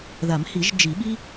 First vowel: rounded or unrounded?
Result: unrounded